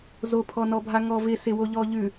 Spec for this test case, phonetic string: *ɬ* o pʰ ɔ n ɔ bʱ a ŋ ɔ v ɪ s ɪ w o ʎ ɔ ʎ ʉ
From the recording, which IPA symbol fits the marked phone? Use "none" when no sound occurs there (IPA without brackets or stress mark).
z